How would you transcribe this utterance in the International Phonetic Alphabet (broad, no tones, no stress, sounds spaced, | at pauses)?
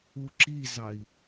u ǁ i z ɑ i̯